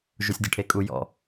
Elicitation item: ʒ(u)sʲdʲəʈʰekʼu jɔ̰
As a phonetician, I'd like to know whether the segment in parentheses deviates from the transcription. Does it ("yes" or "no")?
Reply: no